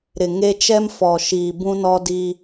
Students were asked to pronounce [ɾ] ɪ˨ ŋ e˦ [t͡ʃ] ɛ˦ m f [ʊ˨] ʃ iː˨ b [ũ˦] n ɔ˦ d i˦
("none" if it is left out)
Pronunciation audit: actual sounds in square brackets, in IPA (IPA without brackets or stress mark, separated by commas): ɾ, t͡ʃ, ɔ˨, ũ˦